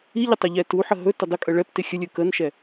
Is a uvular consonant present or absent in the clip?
absent